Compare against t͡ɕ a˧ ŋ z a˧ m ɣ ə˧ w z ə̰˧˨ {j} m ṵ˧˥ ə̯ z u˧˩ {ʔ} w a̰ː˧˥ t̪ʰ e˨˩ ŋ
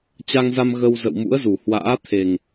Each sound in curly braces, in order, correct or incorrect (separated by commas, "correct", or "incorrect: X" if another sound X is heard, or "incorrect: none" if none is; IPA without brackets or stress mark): incorrect: w, incorrect: h